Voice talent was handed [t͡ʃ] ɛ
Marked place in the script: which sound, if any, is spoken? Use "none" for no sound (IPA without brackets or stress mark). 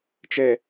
t͡ʃ